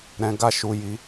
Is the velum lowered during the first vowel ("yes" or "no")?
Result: yes